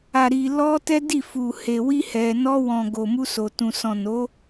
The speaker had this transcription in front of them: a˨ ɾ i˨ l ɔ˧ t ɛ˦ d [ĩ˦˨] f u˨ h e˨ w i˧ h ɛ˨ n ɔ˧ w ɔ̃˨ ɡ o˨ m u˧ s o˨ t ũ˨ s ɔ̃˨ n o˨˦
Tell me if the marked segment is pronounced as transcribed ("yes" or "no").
no